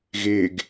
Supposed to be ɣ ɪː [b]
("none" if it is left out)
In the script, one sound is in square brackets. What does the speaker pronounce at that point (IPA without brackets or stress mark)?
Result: ɡ